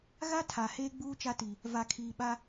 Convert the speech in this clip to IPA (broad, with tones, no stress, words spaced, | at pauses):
ɣa˦ tʰa˨ heː˦ɡ͡buː˦ t͡ʃa˦ti˨ | va˨kʰiː˨ ɓa˦